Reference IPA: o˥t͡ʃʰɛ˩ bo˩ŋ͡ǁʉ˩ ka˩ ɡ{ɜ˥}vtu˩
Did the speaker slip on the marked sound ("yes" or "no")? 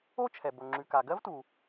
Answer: no